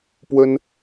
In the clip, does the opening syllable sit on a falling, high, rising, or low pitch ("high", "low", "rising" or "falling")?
high